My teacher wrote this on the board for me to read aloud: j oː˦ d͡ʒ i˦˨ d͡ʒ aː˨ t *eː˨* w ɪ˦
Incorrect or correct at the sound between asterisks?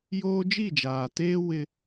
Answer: incorrect: eː˦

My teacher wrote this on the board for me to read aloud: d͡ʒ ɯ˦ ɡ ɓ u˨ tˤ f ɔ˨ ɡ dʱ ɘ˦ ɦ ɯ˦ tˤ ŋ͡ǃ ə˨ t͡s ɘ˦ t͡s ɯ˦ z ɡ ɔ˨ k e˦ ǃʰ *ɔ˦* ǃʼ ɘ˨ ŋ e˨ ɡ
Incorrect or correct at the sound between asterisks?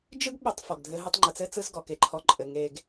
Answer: correct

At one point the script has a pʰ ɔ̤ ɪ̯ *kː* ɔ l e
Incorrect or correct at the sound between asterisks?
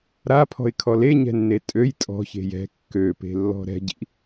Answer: incorrect: kʰ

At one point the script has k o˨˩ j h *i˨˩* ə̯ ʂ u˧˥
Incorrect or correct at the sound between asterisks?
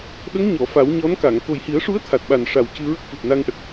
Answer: incorrect: i˨˩˦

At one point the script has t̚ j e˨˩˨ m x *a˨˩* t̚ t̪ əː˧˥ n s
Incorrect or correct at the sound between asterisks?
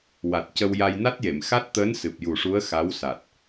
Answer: incorrect: a˦˥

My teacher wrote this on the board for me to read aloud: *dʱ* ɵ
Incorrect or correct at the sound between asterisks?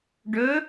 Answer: incorrect: ɖ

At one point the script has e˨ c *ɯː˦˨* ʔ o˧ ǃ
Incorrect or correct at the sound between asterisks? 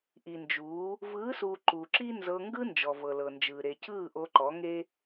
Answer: correct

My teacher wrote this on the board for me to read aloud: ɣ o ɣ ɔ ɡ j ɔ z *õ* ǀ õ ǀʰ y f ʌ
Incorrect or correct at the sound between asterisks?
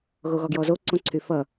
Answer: incorrect: o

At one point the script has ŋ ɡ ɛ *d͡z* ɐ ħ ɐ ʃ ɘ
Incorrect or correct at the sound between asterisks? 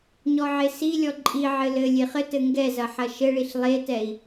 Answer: incorrect: z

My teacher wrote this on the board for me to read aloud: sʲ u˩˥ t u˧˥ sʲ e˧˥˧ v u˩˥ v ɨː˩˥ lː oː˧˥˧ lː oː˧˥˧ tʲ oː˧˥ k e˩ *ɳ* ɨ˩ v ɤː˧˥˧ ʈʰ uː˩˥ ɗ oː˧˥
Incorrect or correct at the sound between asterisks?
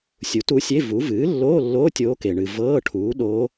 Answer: correct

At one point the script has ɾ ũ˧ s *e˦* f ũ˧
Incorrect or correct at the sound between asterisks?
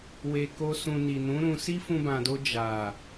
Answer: incorrect: i˦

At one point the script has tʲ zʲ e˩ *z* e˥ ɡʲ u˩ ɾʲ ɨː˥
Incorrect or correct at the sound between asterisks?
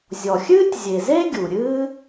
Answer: correct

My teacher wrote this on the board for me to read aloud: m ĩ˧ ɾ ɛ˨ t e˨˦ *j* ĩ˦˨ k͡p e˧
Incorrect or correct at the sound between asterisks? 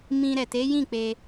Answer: correct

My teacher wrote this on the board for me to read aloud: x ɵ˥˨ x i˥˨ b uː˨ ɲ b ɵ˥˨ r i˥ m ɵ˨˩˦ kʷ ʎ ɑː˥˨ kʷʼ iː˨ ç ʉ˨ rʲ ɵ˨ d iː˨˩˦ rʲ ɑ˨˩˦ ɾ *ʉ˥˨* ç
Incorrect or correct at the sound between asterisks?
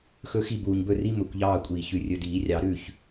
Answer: correct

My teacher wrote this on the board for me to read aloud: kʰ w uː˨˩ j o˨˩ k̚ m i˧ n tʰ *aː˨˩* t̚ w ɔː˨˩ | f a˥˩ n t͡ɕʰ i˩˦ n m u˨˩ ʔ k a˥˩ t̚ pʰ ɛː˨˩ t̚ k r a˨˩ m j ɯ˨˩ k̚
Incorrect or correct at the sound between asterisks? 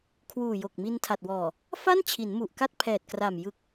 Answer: incorrect: a˨˩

